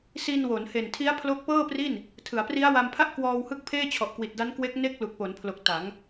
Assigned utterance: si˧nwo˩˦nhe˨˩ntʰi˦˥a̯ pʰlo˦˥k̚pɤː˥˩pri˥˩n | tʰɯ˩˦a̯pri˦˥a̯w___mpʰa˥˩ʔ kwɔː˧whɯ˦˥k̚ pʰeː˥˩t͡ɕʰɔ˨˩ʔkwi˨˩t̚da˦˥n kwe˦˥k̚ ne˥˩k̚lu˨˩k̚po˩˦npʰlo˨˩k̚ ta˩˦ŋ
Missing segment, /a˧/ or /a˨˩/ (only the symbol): a˧